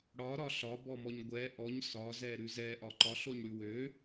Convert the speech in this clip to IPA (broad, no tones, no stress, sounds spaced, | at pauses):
ɽ ɒ ɾ ɒ ɬ ɒ b ɔ m ɔ ɲ ɡʷ ɛ ʔ ɔ ɲ s ɒ z ɛ ɾ ʉ z ɛ ʔ ɒ ǃ ɒ ɬ o ɲ ɽ ʉ w ø